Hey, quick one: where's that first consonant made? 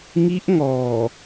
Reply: velum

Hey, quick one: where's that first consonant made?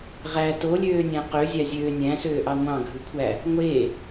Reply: uvula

